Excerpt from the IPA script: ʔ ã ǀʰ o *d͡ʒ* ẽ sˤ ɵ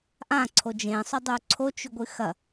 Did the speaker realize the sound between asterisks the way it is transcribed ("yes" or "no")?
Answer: yes